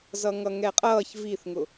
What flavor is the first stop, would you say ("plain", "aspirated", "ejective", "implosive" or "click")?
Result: ejective